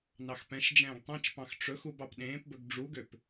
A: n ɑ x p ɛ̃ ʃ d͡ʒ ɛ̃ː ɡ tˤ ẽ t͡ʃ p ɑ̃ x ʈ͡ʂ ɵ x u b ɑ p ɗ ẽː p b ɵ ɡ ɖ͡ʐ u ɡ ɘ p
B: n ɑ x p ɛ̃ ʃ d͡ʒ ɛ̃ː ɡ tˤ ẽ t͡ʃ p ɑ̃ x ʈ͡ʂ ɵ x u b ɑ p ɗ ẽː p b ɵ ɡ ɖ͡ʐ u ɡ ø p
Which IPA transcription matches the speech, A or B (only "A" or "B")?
B